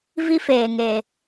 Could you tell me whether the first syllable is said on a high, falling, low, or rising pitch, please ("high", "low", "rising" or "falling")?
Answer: high